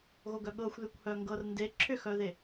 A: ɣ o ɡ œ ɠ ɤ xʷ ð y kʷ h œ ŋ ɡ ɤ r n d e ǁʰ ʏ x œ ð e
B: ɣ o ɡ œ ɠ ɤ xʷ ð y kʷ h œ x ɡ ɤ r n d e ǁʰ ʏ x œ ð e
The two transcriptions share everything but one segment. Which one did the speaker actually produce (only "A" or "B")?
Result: A